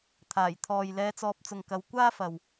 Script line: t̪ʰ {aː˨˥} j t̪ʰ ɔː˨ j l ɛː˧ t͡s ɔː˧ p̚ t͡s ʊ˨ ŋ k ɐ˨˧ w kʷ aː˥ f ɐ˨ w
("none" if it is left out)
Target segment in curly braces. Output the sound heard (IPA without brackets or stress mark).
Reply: aː˨˩